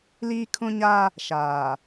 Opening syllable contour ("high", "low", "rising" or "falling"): high